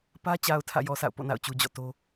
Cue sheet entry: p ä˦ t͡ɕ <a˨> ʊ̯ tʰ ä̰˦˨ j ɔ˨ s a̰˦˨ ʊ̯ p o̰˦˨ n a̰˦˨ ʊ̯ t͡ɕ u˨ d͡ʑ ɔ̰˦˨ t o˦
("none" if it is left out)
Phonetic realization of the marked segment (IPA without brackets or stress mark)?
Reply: a˨